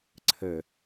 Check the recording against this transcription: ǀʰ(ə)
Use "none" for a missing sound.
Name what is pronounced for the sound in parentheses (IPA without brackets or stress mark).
ə